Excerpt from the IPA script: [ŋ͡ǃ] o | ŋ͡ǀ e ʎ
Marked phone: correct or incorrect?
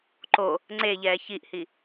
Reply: incorrect